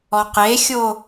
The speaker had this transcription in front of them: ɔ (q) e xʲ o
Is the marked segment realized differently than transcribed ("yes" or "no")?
no